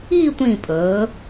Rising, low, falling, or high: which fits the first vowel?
falling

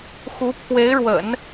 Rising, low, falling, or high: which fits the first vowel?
rising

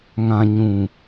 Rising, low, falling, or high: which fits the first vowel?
low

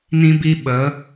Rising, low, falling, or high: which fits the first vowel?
high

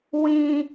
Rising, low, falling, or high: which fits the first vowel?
high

